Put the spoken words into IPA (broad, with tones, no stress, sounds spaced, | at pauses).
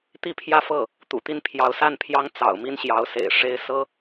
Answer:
t̪ i˥˧ pʰ j ä˥˧ f ɤ˥˩ | t̪ ṵ˨˩ t̪ i˥˩ n pʰ j ɑ˧˥ ʊ̯ s a˥˩ n pʰ j ɑ˥ ŋ t͡s ɑ̰˨˩ ʊ̯ m i˥ n ɕ j ɑ˧˥ ʊ̯ s ḛ˨˩ ɪ̯ ʂ e˥ ɪ̯ s ɤ˥